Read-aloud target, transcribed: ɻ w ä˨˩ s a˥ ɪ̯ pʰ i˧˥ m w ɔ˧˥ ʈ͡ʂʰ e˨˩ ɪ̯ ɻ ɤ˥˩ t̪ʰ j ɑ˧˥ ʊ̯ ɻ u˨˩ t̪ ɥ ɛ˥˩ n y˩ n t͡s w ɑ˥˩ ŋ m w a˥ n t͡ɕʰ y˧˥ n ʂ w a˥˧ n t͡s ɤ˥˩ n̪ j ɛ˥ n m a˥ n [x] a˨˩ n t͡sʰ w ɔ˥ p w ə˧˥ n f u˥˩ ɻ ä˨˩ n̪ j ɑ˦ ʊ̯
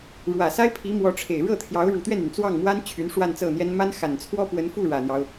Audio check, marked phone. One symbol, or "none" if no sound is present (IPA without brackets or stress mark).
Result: x